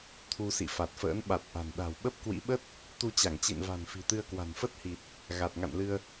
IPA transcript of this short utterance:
t̪ʰ u˧ s ḭ˧˨ f a˨˩ t̚ f ə̰ː˧˥ n ɓ a˨˩ t̚ ʔ a̤˨˩ n ɗ a̤˨˩ w ɓ ə˦˥ p̚ k w ḭ˧˥ ɓ ə˦˥ t̚ | t̪ u˧ t͡ɕ a˧˩ ŋ t͡ɕ ḭ˧˨ n v a̤˨˩ n f i̤˨˩ t̪ ɨ˧ ə̯ k w a̤˨˩ n f ə˦˥ t̚ h i˨˩ t̚ | ɣ a˨˩ t̚ ŋ a̰˧˨ n l ɨ˧ ə̯

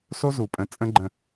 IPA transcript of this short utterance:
s o˦ z u˨ pʼ ə̃˨˦ t͡sʼ ə̃˦ ɡ͡ǃ ə̃˨

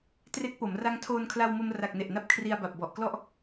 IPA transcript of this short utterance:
t r e˦˥ k̚ p o˩˦ m r a˦˥ ŋ tʰ oː˧ n kʰ l a˧ w m o˧ m r a˨˩ k̚ n e˨˩ ʔ n a˦˥ p̚ kʰ r i˧ a̯ b a˨˩ p̚ b ɔ˨˩ ʔ k l ɔ˥˩ ʔ

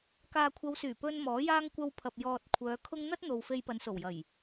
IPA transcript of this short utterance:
k aː˨ kʷʰ ɐ˨˧ w s yː˨˩ p ɵ˧ n m ɔː˨˥ j aː˥ ŋ kʷ ɐ˧ w pʰ ɐ˨ p̚ j ɔː˨ t̚ kʷʰ œː˨˧ kʰ ʊ˥ ŋ n̪ ɐ˥ t̚ n̪ o˨ w f e˧ j p ɐ˨˧ n s o˨˩ w j ɐ˨˩ j

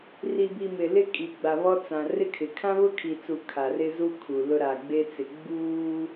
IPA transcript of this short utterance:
r i˨ b i˨ m ɪ˨ l ɪ˦ kʼ i˨ ɡ͡b a˨ β ɔ˦ t͡s ã˨ r ɪ˦ kʰ ɪ˨ kʰ ã˦ β ʊ˦ kʰ i˨ t͡s u˨ kʰ a˨ r ɪ˦ z u˦ kʰ u˨ l ʊ˦ ɾ a˨ ɡ͡b e˦ t͡s ɪ˨ ɡ͡b uː˦

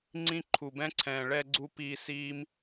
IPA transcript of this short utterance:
ŋ͡ǀ ĩ˧ ǃʰ u˨ b ɛ̃˧ ǀʰ ɛ̃ː˨ ɭ ɛ˧ ɡ͡ǀ u˦ p i˧ s iː˦ m

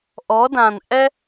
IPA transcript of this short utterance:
ʔ ɔ˩˧ d ã˩ n ʔ ɛ˦

